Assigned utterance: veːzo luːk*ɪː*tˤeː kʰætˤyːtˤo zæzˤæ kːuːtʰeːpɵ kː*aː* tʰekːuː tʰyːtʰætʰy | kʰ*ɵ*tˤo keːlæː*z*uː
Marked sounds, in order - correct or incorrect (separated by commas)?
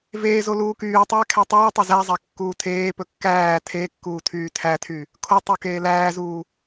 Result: incorrect, incorrect, incorrect, correct